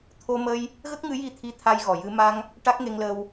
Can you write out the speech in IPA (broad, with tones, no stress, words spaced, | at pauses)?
t̪ʰo˧mə˧j | ɣə˦˥k̚ŋɨ˧˥ji˧t̪ʰi˧˥ t̪ʰa˧jɣɔ˨˩jɨ˧ ma˧ŋ | ʈa˦˥k̚ŋe˧ŋləː˧w